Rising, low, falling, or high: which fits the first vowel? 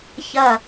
falling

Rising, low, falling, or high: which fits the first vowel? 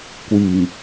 low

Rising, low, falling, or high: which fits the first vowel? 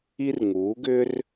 high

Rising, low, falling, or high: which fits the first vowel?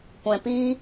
low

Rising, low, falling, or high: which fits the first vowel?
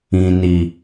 low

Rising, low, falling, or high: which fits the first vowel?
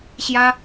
high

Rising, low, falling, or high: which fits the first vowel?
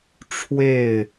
falling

